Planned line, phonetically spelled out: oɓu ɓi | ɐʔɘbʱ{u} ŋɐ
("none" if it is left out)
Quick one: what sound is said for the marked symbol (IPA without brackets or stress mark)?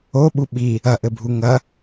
u